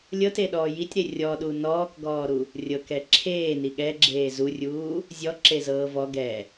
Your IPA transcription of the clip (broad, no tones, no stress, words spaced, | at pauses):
lʲɤteɗɔː jitʲɾe rʲɔɗu nɔːkɡɔːɾu | rʲɤkɛ ǁʰeːni ɠɛɡ͡ǁeː zurʲuː | zʲɔǁezɤː vɔ ɡɛ